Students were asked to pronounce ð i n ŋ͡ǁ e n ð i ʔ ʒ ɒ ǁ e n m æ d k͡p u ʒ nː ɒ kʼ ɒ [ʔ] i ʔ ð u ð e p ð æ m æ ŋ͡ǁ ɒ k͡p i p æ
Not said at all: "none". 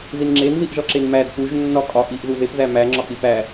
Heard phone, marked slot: ʔ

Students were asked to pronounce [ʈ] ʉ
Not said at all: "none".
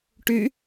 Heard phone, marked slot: ʈ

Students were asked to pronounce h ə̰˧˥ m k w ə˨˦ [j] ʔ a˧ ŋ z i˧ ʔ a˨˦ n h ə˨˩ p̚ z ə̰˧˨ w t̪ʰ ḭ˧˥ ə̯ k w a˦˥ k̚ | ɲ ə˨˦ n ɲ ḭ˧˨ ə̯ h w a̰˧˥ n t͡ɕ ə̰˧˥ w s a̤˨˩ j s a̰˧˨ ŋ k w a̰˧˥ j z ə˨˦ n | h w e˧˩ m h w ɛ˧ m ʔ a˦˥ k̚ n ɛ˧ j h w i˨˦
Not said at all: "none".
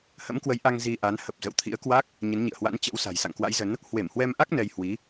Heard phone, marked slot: j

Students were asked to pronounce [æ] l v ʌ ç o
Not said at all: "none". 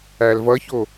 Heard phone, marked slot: æ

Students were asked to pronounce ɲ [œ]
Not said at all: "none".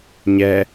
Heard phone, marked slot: ɛ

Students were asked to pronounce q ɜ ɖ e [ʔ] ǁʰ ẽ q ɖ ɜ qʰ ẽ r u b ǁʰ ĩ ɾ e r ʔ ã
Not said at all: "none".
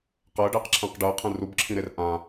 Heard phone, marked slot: q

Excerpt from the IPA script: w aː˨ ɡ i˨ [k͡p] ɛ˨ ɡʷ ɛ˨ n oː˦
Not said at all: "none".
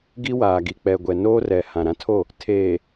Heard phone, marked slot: k͡p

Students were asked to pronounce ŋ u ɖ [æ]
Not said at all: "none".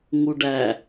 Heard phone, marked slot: æ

